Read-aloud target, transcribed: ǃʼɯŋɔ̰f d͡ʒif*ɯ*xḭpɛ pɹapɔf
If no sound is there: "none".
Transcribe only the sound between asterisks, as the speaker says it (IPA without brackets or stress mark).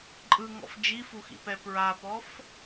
u